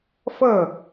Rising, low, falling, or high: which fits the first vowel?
falling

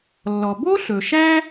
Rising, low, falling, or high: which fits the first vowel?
low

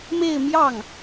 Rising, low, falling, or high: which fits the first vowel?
falling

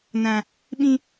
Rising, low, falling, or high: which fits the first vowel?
high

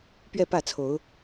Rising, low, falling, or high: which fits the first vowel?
falling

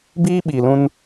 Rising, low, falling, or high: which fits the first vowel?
high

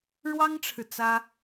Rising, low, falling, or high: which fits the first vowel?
high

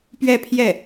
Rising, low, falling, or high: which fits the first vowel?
falling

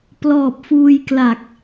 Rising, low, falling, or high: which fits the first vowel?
low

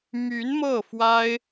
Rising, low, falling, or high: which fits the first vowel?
rising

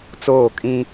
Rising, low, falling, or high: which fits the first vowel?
falling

